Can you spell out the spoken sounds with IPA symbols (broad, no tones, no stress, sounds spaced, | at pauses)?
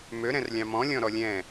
m ø ɾ ɛ̃ r lʲ ɑ̃ m ɔ̃ lʲ ɔ̃ ɾ ɔ lʲ ɛ̃